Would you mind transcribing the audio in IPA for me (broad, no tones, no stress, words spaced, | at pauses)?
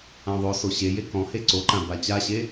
ãðˤoso ɕeje kɔ̃he ǀoǃã bat͡ɕaɕe